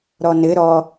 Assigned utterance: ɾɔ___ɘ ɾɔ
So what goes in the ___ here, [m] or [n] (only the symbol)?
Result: n